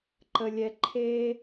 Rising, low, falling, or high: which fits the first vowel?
low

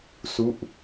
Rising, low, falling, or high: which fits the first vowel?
falling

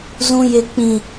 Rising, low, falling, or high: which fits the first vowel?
high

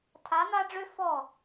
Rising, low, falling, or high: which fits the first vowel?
rising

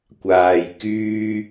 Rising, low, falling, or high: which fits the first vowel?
low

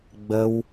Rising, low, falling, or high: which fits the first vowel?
high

